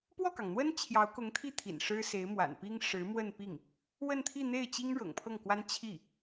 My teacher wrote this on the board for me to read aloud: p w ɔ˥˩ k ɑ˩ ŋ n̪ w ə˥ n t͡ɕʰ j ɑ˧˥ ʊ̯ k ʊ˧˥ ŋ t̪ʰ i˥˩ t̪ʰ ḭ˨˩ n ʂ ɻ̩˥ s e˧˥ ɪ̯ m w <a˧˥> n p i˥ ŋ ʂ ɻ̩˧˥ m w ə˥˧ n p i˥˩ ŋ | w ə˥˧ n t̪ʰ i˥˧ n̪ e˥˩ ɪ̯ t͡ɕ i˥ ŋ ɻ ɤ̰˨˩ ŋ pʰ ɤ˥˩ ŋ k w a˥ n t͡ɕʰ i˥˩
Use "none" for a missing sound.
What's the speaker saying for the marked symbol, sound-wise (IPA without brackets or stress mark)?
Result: a̰˨˩